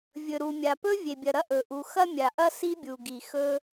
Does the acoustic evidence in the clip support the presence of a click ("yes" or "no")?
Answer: no